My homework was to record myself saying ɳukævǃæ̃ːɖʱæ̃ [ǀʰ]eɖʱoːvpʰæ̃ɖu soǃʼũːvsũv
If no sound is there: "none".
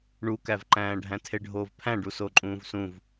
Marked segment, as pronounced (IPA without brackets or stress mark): tʰ